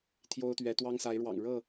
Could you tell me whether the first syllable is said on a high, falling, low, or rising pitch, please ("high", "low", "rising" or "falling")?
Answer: high